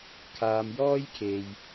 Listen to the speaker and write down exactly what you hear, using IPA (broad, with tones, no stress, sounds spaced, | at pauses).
kʰ aː˨ m j ɔː˥ j kʰ e˨ j